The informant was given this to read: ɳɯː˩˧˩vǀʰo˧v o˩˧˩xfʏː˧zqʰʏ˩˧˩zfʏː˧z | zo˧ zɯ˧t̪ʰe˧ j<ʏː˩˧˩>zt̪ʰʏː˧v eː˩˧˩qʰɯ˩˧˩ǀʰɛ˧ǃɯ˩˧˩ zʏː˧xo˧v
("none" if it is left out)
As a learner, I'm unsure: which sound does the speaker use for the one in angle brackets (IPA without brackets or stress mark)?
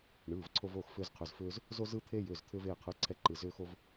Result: ʏː˩˧˩